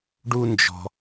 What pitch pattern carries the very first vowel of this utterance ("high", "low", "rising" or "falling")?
high